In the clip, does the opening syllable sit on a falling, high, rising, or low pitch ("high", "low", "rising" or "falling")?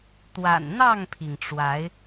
low